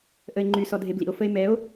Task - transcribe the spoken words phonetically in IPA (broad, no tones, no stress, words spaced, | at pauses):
ʔəe̯ŋ͡ǃy sɔdʱeblḭo̯ fəe̯mɛo̯